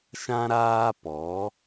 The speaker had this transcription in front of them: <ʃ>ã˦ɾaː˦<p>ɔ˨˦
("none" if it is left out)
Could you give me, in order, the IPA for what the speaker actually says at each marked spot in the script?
ʃ, p

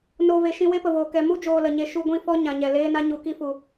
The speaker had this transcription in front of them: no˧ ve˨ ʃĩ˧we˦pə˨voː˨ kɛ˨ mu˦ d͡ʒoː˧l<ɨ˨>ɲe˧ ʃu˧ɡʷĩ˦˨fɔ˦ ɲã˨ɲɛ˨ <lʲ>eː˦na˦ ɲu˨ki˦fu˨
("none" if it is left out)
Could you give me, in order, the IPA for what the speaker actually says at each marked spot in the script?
ə˨, l

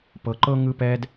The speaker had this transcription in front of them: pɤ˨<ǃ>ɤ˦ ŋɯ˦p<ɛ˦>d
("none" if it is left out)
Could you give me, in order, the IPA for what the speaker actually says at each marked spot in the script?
ǃ, ɛ˦

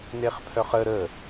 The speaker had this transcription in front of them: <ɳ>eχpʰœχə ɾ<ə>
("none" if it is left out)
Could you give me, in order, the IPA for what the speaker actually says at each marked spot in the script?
n, ə

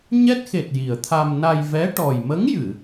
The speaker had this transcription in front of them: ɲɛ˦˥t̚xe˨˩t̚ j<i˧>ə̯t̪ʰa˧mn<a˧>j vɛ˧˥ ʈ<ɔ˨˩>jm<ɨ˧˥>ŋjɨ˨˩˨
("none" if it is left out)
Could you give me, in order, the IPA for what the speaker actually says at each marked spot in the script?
i˨˩, a˧, ɔ˨˩, ə˧˥

